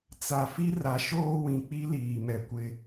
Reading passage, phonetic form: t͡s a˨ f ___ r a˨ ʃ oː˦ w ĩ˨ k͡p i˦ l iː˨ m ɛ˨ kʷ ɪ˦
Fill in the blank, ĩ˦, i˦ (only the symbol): i˦